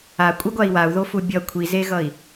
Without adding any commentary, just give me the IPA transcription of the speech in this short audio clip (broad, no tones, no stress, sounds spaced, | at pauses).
a kʷʼ ɯ ɡʷ a i̯ w a u̯ ð o f u bʲ ʌ kʷʰ i z e ɣ ʌ i̯